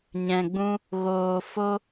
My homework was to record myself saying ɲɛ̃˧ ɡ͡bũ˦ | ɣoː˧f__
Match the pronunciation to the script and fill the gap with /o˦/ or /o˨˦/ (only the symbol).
o˦